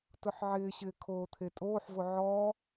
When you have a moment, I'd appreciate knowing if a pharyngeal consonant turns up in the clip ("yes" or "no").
yes